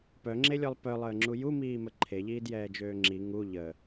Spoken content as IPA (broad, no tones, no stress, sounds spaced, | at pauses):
p œ ŋ͡ǁ e lʲ ɔ lˠ p œ lˠ əː ŋ͡ǁ u j u m iː m ə ǃʰ e ʎ iː d j ɛː d͡ʒ øː ŋ͡ǁ i ŋ u ʎ ə